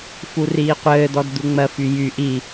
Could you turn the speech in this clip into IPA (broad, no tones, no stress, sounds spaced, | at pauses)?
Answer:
f u r iː qʷ ɘː d̪ ɔ d d̪ u ŋ͡m ɜ f y j y ʔ i